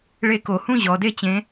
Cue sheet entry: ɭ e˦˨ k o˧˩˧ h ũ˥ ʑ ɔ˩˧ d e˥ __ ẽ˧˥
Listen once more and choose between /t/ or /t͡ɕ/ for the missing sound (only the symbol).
t͡ɕ